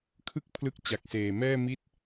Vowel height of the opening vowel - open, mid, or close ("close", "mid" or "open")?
close